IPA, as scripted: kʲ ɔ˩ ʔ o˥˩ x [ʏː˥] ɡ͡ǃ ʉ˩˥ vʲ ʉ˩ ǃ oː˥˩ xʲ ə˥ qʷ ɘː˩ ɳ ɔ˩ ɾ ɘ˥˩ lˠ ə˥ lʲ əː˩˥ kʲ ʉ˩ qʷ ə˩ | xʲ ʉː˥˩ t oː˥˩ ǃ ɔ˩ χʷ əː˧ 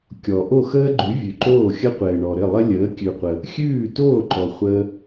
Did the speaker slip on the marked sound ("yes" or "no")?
yes